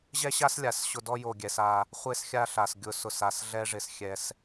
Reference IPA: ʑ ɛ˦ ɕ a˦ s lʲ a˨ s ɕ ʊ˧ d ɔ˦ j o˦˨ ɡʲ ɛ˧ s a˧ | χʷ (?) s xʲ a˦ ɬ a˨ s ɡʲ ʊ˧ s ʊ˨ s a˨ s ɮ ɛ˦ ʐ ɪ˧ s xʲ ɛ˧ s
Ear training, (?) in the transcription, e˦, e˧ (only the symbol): e˦